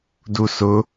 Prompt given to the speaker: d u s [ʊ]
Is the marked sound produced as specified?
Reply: yes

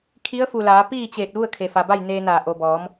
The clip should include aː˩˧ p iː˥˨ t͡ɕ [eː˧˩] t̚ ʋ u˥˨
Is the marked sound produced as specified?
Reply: yes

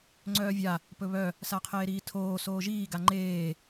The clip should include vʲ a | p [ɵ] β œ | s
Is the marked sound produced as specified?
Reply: yes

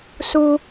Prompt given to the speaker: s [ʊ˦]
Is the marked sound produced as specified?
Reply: no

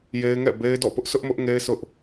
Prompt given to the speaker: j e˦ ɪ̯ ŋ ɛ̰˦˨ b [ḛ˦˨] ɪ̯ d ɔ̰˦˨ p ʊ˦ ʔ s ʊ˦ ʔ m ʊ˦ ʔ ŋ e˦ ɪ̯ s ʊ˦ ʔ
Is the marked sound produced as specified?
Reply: no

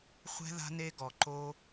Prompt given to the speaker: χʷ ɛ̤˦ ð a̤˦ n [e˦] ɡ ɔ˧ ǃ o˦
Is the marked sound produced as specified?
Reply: yes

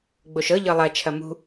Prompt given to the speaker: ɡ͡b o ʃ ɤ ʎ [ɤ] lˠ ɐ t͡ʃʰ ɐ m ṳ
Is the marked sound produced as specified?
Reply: yes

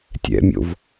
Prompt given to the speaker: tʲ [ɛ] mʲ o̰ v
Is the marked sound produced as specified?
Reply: no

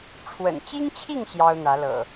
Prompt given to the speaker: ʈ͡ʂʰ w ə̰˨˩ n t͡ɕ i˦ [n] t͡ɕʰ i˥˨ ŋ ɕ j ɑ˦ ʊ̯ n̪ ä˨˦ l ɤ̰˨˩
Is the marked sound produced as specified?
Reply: no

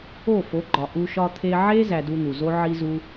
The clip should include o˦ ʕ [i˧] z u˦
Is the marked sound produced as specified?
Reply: no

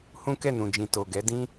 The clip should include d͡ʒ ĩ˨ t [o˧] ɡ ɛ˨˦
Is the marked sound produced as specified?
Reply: no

